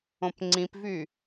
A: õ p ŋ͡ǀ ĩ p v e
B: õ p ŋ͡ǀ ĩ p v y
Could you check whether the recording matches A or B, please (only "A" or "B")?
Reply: B